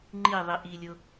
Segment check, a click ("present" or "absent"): present